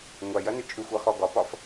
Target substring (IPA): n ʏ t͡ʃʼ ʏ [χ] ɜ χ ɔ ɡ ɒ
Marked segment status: incorrect: xʷ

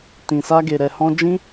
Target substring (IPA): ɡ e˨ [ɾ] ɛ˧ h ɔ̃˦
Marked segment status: correct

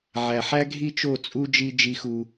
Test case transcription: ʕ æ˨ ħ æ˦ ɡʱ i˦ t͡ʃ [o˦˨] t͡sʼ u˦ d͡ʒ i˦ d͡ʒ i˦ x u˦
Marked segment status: correct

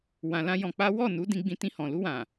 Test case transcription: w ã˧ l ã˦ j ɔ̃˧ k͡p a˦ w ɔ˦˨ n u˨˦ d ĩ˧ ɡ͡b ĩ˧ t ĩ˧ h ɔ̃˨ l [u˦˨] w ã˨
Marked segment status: incorrect: u˧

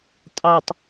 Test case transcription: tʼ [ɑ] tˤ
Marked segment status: correct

